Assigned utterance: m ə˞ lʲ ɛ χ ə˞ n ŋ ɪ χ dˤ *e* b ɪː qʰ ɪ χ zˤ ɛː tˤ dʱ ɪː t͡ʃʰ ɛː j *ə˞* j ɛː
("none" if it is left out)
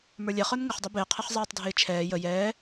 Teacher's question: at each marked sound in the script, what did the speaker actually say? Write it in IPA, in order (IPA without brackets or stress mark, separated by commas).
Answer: ɛ, ə